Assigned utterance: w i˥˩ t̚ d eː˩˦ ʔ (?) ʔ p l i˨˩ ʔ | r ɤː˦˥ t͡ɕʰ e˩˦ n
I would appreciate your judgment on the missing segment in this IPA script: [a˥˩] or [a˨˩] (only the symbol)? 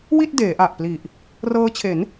a˨˩